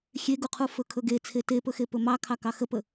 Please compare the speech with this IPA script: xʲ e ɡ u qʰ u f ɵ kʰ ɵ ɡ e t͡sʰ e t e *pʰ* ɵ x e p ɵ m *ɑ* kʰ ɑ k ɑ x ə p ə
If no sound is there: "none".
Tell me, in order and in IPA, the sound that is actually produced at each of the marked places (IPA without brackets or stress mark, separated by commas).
p, ɑ